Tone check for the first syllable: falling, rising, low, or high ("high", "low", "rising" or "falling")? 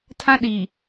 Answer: high